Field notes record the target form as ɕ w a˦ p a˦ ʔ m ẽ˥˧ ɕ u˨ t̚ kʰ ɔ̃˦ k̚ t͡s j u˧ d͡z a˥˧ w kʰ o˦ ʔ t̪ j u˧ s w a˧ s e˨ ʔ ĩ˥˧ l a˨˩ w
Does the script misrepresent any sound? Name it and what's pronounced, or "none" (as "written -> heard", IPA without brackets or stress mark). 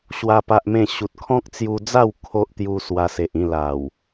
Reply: none